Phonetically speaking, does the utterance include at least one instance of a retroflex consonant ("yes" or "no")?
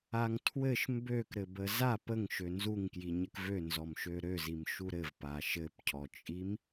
no